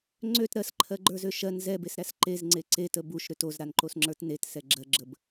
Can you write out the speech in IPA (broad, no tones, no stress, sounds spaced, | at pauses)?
ŋ͡ǀ ø t ɾ ɜ s ǃʰ ɜ ɡ͡ǃ ə˞ z ø ʃ ɜ n z ɛ b e s ɾ æ s ǃ e z ŋ͡ǀ e ǀ e t ə b u ʃ ɾ ø t o z ɾ a n ǃ o s ŋ͡ǁ ə˞ t n e t s ɛ ɡ͡ǁ ɜ ɡ͡ǁ ə b